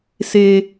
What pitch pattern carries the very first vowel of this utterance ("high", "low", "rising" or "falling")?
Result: low